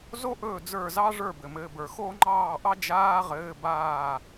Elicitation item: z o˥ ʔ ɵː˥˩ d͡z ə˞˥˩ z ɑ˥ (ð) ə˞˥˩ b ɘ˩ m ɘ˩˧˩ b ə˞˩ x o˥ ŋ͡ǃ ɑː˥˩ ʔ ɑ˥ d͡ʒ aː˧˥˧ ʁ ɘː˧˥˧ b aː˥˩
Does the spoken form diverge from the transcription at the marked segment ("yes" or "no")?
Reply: yes